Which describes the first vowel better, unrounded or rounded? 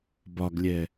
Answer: rounded